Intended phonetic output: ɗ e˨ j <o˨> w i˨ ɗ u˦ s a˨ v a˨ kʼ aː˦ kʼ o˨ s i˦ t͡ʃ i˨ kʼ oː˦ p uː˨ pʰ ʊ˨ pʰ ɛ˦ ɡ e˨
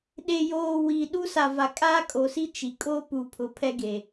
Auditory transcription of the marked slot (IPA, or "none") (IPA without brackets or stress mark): oː˨